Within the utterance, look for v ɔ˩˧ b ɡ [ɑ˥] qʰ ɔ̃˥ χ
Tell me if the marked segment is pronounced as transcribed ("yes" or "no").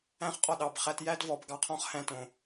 no